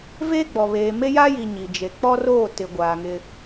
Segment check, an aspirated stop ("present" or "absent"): absent